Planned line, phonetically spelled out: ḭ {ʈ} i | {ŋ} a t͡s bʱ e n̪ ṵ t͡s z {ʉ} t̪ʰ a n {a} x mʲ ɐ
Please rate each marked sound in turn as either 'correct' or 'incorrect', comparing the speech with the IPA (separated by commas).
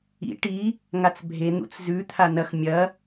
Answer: correct, correct, correct, incorrect